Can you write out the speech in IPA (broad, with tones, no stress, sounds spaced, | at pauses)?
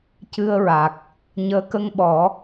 c ɨ˧ ə̯ ɹ a˨˩ k̚ | ɲ əː˧˥ k ə˧ ŋ ɓ ɔ˨˩˦